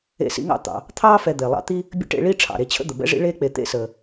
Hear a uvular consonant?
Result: no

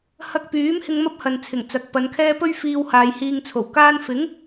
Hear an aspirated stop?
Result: yes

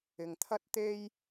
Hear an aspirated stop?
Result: yes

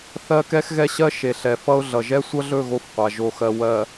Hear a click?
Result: no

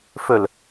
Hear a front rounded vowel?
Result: yes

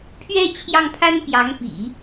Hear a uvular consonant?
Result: no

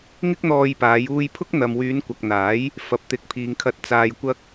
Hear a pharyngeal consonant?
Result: no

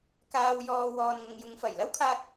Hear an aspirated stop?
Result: yes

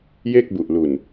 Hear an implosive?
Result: no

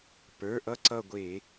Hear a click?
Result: yes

